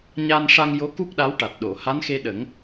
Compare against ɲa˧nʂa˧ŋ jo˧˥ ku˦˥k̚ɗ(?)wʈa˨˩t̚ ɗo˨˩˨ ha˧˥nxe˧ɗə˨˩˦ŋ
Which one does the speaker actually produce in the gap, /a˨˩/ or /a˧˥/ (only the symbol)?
a˧˥